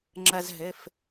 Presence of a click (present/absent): present